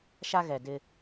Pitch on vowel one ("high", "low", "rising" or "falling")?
high